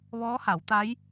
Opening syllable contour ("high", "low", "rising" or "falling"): rising